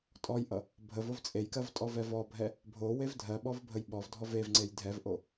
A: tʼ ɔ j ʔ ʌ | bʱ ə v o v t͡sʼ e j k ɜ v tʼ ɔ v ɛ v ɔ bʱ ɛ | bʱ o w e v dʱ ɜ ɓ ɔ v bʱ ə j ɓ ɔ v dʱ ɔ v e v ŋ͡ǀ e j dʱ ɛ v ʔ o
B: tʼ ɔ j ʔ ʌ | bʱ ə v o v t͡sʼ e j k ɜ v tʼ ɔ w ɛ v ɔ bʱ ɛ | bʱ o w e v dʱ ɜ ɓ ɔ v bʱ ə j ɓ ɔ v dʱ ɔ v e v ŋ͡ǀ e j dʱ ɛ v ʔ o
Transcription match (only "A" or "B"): A